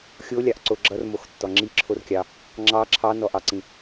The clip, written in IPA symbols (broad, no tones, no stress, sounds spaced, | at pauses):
xʲ o lʲ ɑ ʔ ǀ o ɡ͡ǁ ʌ r m o x tː ɔ ŋ͡ǁ i ǁʰ o r kʲ ɑ | ŋ͡ǁ ɑ ǁʰ ɑ n ɔ ʔ ɑ ǀ ĩ